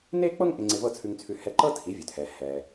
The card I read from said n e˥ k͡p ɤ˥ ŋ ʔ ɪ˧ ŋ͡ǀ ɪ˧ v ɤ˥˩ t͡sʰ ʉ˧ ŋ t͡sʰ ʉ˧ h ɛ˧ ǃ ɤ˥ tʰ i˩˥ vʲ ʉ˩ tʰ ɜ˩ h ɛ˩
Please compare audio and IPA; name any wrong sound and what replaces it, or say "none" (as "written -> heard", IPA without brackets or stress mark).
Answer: ɜ˩ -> ɛ˩